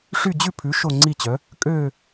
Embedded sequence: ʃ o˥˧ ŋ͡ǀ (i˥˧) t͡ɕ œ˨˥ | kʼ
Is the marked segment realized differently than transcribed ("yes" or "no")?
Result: no